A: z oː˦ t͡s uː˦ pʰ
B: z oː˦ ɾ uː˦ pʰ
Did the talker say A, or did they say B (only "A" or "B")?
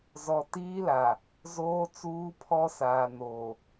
A